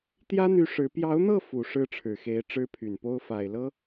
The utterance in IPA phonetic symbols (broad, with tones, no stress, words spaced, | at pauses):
t̪jä˥n̪y˧˥ ʂɻ̩˧˥ pjɑ˧˥ʊ̯n̪ɤ˥˩ fu˨˩ ʂɻ̩˥˩ʈ͡ʂʰɻ̩˨˩xe˧˥ɪ̯ ʈ͡ʂɻ̩˥pʰy˨˩npo˥ʊ̯ fa˨˩ɪ̯ lɤ˥